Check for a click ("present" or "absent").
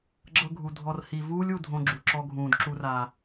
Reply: present